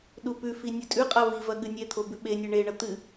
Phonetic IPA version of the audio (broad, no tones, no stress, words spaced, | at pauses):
ɗupʉfi nʲɵtʼʉqʼa vivɐ ɠɨnʲet̪ʰo bʉɓenʲe ɳeɳɐ t̪ɨ